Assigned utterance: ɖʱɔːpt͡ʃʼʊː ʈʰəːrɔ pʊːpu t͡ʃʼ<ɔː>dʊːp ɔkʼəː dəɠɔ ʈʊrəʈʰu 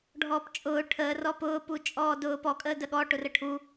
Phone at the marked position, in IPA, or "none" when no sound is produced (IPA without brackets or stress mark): ɔː